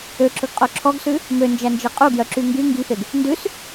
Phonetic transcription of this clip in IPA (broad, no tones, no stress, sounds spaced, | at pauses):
ø ǁ ɵ ɡ qʼ o ǁʰ ɔ ɡ s ʉ | m ø n d͡ʒ æ n d͡ʒ e qʼ u ɡ j œ ǁ y ŋ ɡ y ŋ ɡ i f e ɡ | n d ʉ s